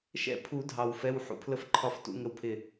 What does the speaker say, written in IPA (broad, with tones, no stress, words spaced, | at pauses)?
ʃɛ̰˥˩pʰu˨˩˦ dʱɑ˨˩wfɛ˧˥˧w ħṵ˧˥pʰlə˥˩fǃʰɒ˥˩ftṵ˧˥˧ ŋə˥˩wpʰɪ˥˩